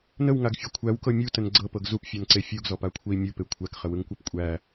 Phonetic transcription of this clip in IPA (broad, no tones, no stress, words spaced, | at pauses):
nəwŋaɡfʲɯ kʷʰæwkɤ mʲutən ɡ͡ǀɤpɤɡ zupfʲɔnǀe fʲuɡzɔpakʷʰei̯ mʲupe kʷʰækχəwɯŋkʷap kʷʼæ